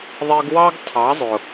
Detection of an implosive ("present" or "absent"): absent